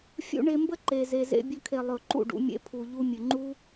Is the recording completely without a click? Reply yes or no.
no